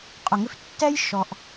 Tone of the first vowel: low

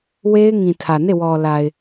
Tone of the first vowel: high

